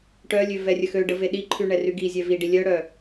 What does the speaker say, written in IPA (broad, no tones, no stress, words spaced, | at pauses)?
ʈœlʲø vɛrʲəxøɖə veɗiǃʰy ɳɛryɡizʲɛ viɖi lʲœɽœ